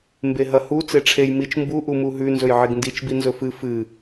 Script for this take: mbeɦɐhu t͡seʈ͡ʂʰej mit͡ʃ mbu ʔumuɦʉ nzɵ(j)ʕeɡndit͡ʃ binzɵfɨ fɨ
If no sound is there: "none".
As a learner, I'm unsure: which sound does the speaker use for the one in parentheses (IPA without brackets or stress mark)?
j